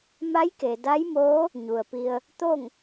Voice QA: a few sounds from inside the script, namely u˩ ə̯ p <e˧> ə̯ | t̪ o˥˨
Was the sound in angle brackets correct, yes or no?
no